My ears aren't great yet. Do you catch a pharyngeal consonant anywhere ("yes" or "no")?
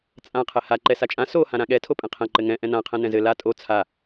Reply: no